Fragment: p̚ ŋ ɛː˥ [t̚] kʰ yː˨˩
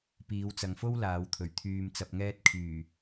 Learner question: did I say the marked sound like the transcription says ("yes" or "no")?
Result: yes